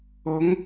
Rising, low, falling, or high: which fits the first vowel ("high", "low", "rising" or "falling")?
rising